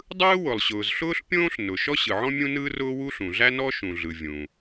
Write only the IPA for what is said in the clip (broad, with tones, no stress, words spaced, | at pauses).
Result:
dˤɯː˥wʊ˩lˠɕʊː˩z ɬʊː˥ɬpʲõː˥ɬ nʊ˩ ʃɔ˥ɕɯ˩ʕɔ̃˥ mʲũ˥nɯː˥r ʊː˥wu˥ ɬũ˩ɮæ˥nɔ˥ ʃũ˩ɮɯ˩ vʲũː˩